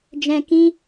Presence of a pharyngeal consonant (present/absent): absent